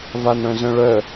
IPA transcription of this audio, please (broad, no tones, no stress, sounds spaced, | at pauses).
v a n ɽ œ̃ z œ̃ ɭ œ